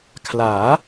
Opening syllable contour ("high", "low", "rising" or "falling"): rising